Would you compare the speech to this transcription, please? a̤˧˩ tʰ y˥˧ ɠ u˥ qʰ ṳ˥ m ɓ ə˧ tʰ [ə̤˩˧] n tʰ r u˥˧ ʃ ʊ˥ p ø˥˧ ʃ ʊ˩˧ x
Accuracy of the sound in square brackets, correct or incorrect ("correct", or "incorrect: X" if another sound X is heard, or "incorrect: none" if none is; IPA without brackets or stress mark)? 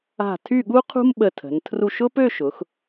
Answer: correct